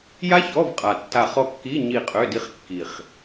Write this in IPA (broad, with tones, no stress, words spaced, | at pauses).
ja˦˥ çɔ˧˥˧vqʼa˨˩ tːa˦˨χ ɔ˦˨kːi˧˥˧ ɲi˦˨qʼø˧˥˧di˦˥χ kːi˨˩χ